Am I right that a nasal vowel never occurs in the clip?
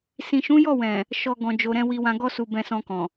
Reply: no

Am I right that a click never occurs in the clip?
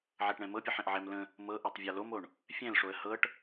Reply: yes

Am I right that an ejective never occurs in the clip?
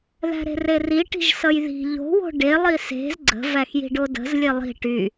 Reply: yes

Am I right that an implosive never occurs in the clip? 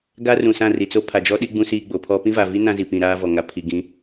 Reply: no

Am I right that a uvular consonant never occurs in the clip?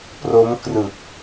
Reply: yes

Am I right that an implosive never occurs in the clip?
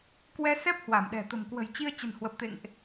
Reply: no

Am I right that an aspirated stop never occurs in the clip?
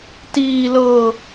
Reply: yes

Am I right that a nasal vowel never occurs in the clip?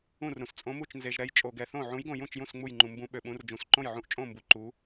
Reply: no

